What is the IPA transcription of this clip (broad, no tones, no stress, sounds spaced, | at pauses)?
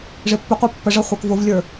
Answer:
ʐ ɪ pː ʊ qʷ ɑ pː ə ʐ ʌ χʷ ə˞ k v ʊ v lʲ ə˞